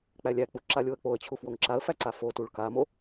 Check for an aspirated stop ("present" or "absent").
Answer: present